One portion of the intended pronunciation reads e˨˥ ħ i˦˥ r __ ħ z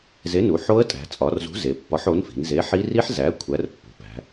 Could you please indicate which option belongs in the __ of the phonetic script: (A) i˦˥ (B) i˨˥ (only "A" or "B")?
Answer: A